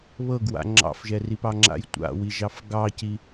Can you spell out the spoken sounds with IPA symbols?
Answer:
β ɤ ɡ w a̰ ŋ͡ǁ ɑ̰ f ʒ ɛ r i p ɑ ŋ͡ǁ a̰ j tʷ a̰ w i ʒ ɑ f ɡ ɑ c i

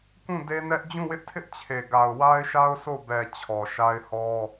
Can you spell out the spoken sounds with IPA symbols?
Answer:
k ũ˦˨ d e˦ n ɛ˦ ʔ d͡ʑ ũ˦˨ w ɪ˦ ʔ tʰ ɪ˦ ʔ t͡ɕʰ e˨ ɡ a˨ ʊ̯ w a˦ ɪ̯ ʃ a˦ ʊ̯ s o˦˨ b ɛ˨ t͡ɕʰ ɔ˨ ʃ a˦ ɪ̯ h ɔ˦

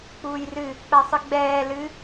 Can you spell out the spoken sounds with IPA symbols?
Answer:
k͡p uː j r ɨ | k͡p ɛ sˤ ɨ ɡ͡b ɛː l ɨ

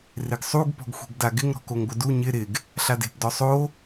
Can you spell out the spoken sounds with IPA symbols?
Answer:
r ɪ ɡ sˤ u ɡ p ɔ̤ ɡ xʷ e̤ ɡ d a ɡ ɪ ŋ ɾ ɔ̤ k o ŋ ɡʷ ɪ d u ɲ ɪ ɾ ɪ ɡ | ɬ a d e̤ p d ɔ sˤ o

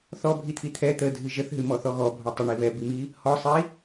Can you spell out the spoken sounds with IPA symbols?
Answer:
θ ɔ bʱ i t̪ʰ i t̪ʰ ɛ t̪ ə dʱ ɨ ʒ ə θ ɦ ɨ m ɔ θ ɔ ɣ ɔ bʱ ɔ tˤ ə ɳ i β ɛ b i m i | h ɔ sˤ i

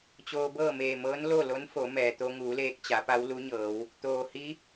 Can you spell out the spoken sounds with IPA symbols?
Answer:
t͡ɕ oː˧ b ɤː˥˨ m eː˧˩ m ɤː˧˥ n l o˥˨ l o˧˥ n f o˩˧ m ɛː˩ t̪ o˧ ŋ uː˩˧ l eː˧ k̚ t͡ɕ a˩˧ p a˧˥ w l u˧˥ ɲ ɤː˩˧ w | t̪ oː˩ h i˧˥

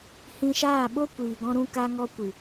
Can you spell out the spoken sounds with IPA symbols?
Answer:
h ĩ˧ ʃ aː˦˨ ɓ o˦ kʷ iː˨ ɡ ɔ̃˧ ɾ ũ˧ k a˧ ŋ ɔ˧ kʷ ɨ˨

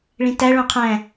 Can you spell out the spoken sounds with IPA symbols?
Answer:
ɭ ĩ t æ ɭ õ qʰ æ̃

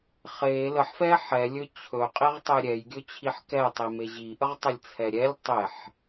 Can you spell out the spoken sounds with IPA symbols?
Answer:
χ e l ə ħ f ɛ ħ ɛ lʲ ɵ t͡ɕʰ ɵ qʼ i ʁ tˤ e ɾʲ ɛ j ɡʲ ɵ t͡ɕʰ i ħ k ɛ tˤ i m e ʑ i ʔ ə ʁ tˤ ə lʲ t͡sʰ ɛ ɾʲ ɛ lʲ tˤ e ħ

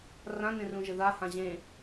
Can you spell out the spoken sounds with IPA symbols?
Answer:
r ã n ẽ r ũ ʒ ɘ ð a h ã ʑ ẽ

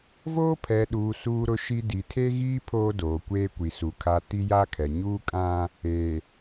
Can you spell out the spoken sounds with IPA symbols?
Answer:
v oː˦ pʰ ɛ˨ ɗ uː˨ s uː˦ ɾ ʊ˦ ʃ i˦ d i˨ tʰ e˦ ɣ iː˦ pʰ oː˦ d oː˨ kʷ eː˦ kʷ i˨ s u˨ kʰ a˦ t i˦ j a˦ kʰ ɛ˨ ɲ uː˦ kʼ ã˦ | e˨

